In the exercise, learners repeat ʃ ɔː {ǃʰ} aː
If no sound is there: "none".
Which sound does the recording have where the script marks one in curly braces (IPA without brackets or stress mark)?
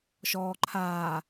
ǃʰ